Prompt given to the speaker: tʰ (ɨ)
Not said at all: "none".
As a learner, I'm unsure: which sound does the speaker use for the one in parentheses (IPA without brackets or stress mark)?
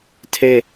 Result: e